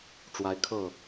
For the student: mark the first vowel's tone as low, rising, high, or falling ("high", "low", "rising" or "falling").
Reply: rising